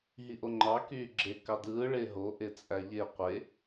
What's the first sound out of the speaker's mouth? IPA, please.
ɦ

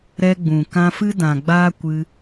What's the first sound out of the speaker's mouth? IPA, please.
ɾ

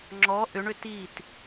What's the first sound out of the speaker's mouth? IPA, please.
ŋ͡ǁ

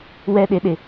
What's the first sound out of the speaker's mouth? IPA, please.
w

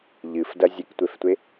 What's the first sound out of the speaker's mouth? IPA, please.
ʎ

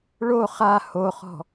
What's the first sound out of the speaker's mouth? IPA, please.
ɭ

